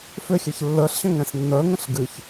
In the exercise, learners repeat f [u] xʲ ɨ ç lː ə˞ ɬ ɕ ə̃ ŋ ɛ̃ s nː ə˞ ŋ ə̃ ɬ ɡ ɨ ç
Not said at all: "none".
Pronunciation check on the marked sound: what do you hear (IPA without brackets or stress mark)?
ʏ